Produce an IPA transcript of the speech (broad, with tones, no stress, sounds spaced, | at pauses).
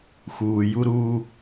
x uː˨ j u˦ ɾ uː˦